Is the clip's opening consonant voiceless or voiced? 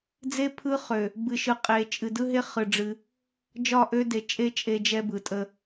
voiced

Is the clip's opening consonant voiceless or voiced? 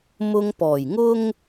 voiced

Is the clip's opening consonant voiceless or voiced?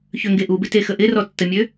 voiceless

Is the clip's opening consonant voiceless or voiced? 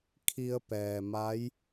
voiceless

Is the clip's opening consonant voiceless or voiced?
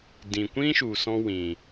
voiced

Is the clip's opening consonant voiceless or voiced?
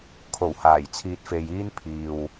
voiceless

